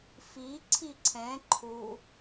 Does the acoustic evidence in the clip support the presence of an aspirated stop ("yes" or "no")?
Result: yes